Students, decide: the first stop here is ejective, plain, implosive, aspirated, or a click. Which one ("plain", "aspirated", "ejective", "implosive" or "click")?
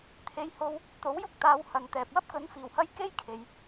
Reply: aspirated